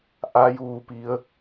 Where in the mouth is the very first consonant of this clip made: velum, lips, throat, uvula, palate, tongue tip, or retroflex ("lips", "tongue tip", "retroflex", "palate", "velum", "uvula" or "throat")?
throat